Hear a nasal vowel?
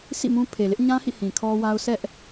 yes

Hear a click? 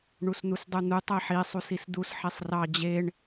no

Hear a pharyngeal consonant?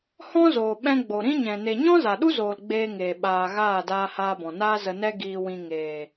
no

